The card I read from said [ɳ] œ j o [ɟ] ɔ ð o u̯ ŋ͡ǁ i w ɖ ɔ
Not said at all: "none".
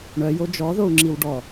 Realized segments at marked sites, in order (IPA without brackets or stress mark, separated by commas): ɳ, d͡ʒ